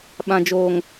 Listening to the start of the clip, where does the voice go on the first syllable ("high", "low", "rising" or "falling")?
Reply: low